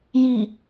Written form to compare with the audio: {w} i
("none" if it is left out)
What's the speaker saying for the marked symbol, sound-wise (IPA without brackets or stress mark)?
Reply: j